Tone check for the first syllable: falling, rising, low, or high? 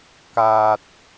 low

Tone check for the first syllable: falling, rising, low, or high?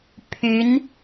rising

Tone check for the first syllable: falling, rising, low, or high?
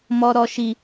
low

